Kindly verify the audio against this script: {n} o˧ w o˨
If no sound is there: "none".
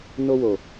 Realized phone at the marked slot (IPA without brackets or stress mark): n